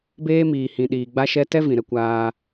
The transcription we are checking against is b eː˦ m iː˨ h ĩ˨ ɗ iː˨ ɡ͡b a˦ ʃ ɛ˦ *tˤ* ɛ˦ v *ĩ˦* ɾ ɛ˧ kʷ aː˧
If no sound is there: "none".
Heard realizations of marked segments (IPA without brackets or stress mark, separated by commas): t, ĩ˨